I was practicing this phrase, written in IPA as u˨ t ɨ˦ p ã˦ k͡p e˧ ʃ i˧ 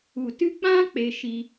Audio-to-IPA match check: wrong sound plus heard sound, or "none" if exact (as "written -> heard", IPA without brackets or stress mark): p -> k͡p